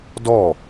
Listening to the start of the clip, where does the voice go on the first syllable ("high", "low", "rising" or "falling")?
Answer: falling